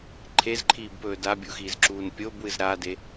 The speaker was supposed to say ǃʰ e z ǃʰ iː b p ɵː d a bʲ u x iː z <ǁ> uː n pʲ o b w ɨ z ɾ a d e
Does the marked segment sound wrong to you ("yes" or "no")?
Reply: no